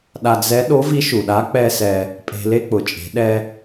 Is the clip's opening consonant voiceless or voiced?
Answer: voiced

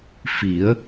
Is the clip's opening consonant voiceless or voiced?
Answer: voiceless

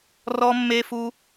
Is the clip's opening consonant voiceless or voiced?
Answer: voiced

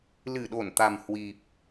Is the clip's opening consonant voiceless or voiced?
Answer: voiced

